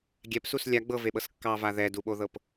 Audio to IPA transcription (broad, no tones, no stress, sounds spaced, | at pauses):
ɡʲ ɛ p s u s lʲ a ɡ͡b ɤ v e ɓ ɤ s kː ɑ v a ð ɛ d u ɓ o ð ɤ p